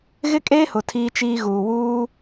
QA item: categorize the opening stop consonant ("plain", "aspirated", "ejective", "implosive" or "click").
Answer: ejective